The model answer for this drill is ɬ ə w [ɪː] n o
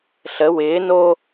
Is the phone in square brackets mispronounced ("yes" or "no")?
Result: no